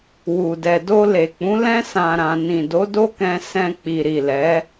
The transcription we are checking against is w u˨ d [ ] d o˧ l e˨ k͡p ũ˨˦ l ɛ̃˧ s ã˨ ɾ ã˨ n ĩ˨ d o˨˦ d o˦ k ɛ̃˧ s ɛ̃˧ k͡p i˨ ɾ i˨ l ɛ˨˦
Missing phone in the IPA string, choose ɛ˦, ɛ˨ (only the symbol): ɛ˨